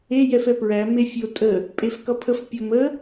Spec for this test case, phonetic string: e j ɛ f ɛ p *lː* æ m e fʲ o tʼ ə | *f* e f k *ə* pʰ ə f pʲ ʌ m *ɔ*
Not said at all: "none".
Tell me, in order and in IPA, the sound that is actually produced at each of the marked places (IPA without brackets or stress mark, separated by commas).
ɹ, pʼ, ʌ, ə